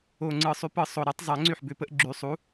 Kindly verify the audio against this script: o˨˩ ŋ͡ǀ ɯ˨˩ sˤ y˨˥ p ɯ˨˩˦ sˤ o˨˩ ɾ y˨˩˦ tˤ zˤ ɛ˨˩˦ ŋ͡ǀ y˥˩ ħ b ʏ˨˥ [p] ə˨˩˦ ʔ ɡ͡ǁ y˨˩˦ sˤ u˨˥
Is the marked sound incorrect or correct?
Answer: correct